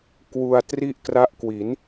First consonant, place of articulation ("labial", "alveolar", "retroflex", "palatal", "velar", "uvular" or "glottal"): velar